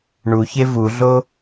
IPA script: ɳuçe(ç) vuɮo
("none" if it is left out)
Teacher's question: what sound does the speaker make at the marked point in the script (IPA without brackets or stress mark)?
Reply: none